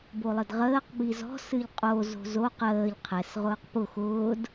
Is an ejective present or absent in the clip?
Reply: present